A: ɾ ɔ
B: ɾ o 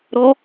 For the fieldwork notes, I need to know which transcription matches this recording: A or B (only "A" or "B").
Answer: A